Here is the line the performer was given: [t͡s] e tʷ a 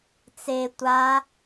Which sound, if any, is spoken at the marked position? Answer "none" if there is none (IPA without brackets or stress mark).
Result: t͡s